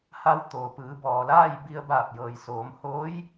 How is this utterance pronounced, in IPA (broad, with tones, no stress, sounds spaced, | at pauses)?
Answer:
h a˧ w t̪ oː˩ p ɯː˩˧ b ɔː˩ l aː˥˨ j b i˧ ə̯ b aː˧˩ p̚ j ɤː˩ j s oː˩˧ m h oː˧˥ j